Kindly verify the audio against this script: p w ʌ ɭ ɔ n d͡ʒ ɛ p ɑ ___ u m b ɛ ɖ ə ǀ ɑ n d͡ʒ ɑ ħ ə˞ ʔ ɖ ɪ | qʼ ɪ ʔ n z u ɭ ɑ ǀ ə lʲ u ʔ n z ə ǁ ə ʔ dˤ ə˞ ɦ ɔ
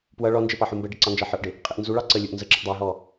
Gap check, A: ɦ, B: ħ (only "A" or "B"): B